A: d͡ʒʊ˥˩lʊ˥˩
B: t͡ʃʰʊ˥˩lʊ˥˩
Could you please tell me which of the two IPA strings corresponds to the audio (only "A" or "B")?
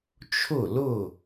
B